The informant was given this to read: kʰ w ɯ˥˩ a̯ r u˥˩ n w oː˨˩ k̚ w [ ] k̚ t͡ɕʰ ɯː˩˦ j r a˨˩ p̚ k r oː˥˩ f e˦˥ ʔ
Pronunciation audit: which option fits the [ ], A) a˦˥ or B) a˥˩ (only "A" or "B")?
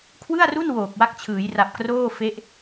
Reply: A